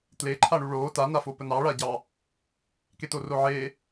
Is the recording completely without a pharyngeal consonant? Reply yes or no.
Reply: no